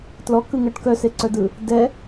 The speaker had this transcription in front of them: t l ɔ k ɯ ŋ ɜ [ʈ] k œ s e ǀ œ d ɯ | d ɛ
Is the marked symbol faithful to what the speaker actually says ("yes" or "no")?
yes